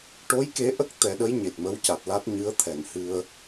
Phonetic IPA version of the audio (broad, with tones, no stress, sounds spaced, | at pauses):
ʈ o˧˥ j k e˧˥ ʔ ə˦˥ k̚ t̪ ɛ˨˩˦ ɗ ə˧˥ j ɲ e˨˩ t̚ m ə˧˥ w c a˨˩ t̚ l a˦˥ t̚ ɲ ɨ˧˥ ə̯ t̪ʰ ɛ˨˩˨ n h ɨ˧ ə̯